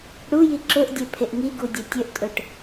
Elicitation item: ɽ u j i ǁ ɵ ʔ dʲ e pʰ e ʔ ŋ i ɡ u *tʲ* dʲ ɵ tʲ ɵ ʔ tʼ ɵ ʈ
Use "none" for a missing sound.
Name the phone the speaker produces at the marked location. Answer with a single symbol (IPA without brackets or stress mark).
none